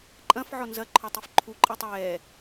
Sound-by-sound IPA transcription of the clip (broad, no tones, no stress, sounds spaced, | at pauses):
ǃʼ ɐ̃ f ʕ ɔ n z ɐ ǃʰ ɔ tˤ i f ǃʰ u ǃʼ ɛ tˤ ɛː